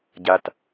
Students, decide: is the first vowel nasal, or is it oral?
oral